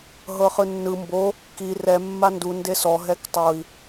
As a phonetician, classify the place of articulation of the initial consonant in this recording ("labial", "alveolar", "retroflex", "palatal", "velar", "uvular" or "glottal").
glottal